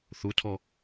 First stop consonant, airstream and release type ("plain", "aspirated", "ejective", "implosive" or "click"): aspirated